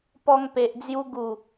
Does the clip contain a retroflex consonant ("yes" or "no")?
no